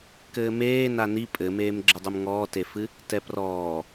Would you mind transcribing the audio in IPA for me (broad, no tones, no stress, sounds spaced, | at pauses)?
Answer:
k ɘː m eː n a n i pʼ ɘ m eː m ɡ͡ǁ ɘ dˤ ɨ m ŋ ɔː t e f ɨ | t ɛ p r ɔː